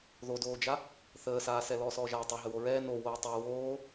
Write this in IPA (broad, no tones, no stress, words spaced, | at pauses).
ðodoːd͡ʒa | θəːsaːsɛ lɔːsɔːʒaːtˤo ɦəwoɹɛː no woːtˤɛ woː